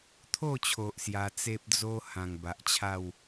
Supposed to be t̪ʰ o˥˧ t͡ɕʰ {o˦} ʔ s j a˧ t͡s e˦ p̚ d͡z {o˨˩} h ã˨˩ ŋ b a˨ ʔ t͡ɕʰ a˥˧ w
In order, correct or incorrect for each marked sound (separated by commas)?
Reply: incorrect, incorrect